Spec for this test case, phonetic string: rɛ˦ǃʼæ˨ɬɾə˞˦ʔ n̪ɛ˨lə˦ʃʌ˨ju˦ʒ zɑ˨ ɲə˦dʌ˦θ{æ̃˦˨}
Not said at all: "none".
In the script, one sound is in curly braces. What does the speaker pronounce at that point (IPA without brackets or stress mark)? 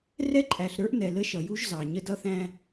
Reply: æ̃˦